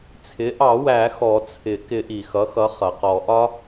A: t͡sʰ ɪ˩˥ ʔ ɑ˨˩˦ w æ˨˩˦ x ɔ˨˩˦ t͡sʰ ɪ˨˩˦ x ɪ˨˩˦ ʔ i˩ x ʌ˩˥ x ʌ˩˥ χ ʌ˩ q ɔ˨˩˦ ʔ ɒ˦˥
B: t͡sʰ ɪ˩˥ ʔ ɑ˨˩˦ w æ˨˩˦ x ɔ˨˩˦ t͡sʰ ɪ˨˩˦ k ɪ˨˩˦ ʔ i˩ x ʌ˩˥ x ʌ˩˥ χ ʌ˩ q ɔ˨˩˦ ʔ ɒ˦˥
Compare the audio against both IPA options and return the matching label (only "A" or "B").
B